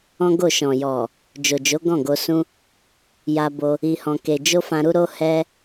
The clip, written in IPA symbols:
ɔ̃˦ ɡ o˦˨ ʃ ɔ̃˨ j ɔ˨ | d͡ʒ o˨ d͡ʒ o˨˦ ɡ ɔ̃˦˨ ɡ o˧ s ũ˦ | j a˧ b o˧ | i˧ h ɔ̃˧ k e˧ d͡ʒ o˦ f ã˧ ɾ u˦ ɾ o˦ h ɛ˦

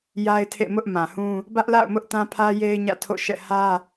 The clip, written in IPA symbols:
j a˦ ɪ̯ tʰ ḛ˦˨ m ʊ˦ ʔ m ã˨ h ũ˦ | b ä˦ ʔ l a̰˦˨ ʊ̯ m ʊ˦ ʔ t ã˦ pʰ ä˦ j e˦ ɪ̯ ɲ ä̰˦˨ tʰ o̰˦˨ ʃ ɛ̰˦˨ h ä˦

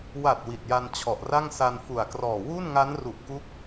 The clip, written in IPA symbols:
w a˨˩ t̚ w i˨˩ t̚ j a˧ n t͡ɕʰ ɔ˨˩ ʔ r a˥˩ ŋ s a˧ n f u˨˩ a̯ k r ɔː˨˩ w u˥˩ n ŋ a˦˥ n r u˨˩ ʔ k u˦˥ k̚

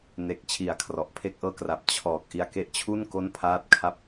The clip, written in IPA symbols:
n e˨˩ k̚ t͡ɕʰ i˨˩ a̯ kʰ r ɔ˨˩ ʔ pʰ e˥˩ k̚ ʔ ɤː˥˩ k r a˨˩ p̚ t͡ɕʰ ɔː˨˩ k̚ ʔ i˧ a̯ k e˦˥ ʔ t͡ɕʰ u˥˩ n k o˥˩ n pʰ aː˥˩ t̚ kʰ a˥˩ p̚

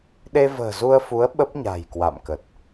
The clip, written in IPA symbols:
ɗ e˧ v ə̤ː˨˩ z u˧ ə̯ f u˨˦ ə̯ ɓ ə˦˥ p̚ ɲ a̤˨˩ j k w a̰˧˨ m k ə˨˩ t̚

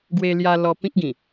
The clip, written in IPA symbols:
ɡ w e˧ l j a˧ l ɔ˧ p ĩ˦ k̚ ɡ ĩ˨˩

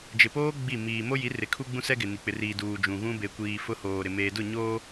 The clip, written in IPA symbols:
d͡ʒ ɪ˨ p oː˦ ɡ͡b i˦˨ m iː˨ m o˦ j i˨˦ r ɪ˨˦ kʰ u˦ ɡ͡b ũ˦ s ɛ˦ ɡ ɪ˨ n i˨ k͡p ɪ˨ r iː˨ d uː˨ d͡ʒ ũ˨ ɣ ũ˦ b e˨ kʷ iː˨ f ʊ˦ h oː˨ ɾ ɪ˨ m eː˨ d ʊ˦˨ ɲ oː˦

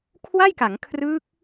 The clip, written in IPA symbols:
kʰ w a˥˩ j k a˩˦ ŋ kʰ r ɯː˦˥ k̚

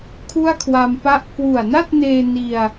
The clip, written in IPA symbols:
kʰ u˥˩ a̯ kʰ w a˧ m p a˥˩ ʔ k w u˨˩ a̯ n a˥˩ t̚ n eː˧ n i˧ a̯

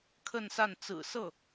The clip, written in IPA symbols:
kʰ ə˥˧ n s a˥˩ n t͡s ɹ̩˨˩ s ɤ˥˩

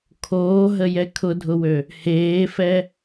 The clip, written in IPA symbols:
kʰ oː ɦ ə j ɛ kʰ ʊ dʱ ʊ w ø | h eː f ɛ

